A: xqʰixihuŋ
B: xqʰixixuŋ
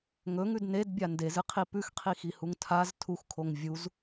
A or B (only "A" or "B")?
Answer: A